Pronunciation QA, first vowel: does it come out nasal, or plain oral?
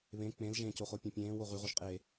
nasal